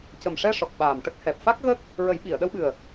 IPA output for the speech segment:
cə˨˩mʂɛ˧ ʂɔ˨˩k̚ɓaː˨˩m ʈə˦˥k̚hɛ˨˩p̚ fa˦˥k̚ɣə˦˥k̚ | ɹə˨˩˦jɓi˨˩˨ə̯ɗə˧wɓɨ˨˩ə̯

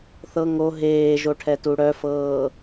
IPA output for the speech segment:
θɤ ŋo ɦeːʒoʈʰɛtu ɽœfɤː

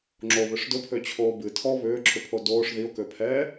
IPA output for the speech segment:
ŋ͡ǁoβʏʂ dʊpʰøt͡ɕʰoː bɨ tʰɔ βʏːǁʰʏpʰo doːʂ ðio̯køpʰɛː

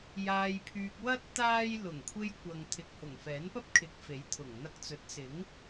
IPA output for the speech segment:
jaː˧jpʰyː˧k̚ wɐ˥t̚ t̪aː˥j lʊ˨˩ŋkʷʰe˧j kʷɐ˨ŋ t̪ʰɪ˨k̚hʊ˨˩ŋ fɛː˨˥npɐ˥p̚kʰɪ˨˥k̚ fe˨˥j t̪ʰʊ˨˩ŋ n̪ɐ˧k̚t͡sɵ˨˥t̚sɪ˨˥ŋ

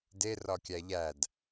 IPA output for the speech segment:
de rɒkʲæʎæd

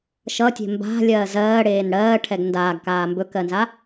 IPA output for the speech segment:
ʃʌtʲe̤ mba̤lʲɜː zɜːɽeːn ɽɜːʈʰɛɡ ndaːɡkaː mbɵkɜnza

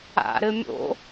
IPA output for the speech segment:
a̰ ɾɘmʲo̰

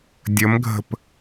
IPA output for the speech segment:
dʲəmɡʱə̤p

